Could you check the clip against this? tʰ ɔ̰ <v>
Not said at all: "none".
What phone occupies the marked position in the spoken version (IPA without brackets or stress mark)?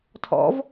v